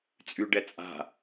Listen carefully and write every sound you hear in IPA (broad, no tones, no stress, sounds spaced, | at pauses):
t͡sʼ y ɖ ɛ t͡sʼ a̤